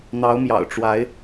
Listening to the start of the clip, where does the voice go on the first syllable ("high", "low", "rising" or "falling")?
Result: rising